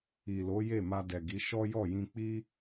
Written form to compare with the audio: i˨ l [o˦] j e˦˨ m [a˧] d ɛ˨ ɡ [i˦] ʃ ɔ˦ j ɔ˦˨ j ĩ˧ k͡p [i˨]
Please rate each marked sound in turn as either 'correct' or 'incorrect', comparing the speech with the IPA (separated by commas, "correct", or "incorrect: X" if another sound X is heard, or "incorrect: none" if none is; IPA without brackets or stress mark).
incorrect: o˨˦, correct, incorrect: i˨˦, incorrect: i˧